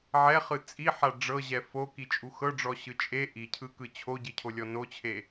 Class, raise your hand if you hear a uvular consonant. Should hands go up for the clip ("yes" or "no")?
yes